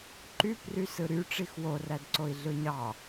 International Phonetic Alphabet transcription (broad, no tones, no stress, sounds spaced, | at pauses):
ǃ y p r y s ɯ ɾ y ʈ͡ʂ i x w o r æ d ǀ o i̯ ɮ ɯ ɲ ɑ